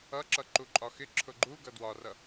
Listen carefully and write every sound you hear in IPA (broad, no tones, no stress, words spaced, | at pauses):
ʌǁʌǃu ǃʼɒxɪ ǁʰʊɡ͡ǃu ɡʌdwɒrʌ